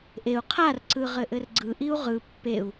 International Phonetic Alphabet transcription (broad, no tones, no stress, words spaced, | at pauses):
ʔeu̯ qʰarǀɯ ʁɘʔɘrɡ͡ǀɯʔiu̯ ʁɯ pːeu̯